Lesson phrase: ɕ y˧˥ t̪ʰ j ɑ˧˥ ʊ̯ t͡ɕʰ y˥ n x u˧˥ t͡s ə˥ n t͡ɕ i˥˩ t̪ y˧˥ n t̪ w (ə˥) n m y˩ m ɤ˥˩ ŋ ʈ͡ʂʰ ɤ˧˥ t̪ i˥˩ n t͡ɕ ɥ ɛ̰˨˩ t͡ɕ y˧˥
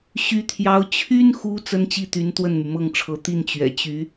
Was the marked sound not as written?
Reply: yes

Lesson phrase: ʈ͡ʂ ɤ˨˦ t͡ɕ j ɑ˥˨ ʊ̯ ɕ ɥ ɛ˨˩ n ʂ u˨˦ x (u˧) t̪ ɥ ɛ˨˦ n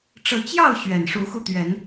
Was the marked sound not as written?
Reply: no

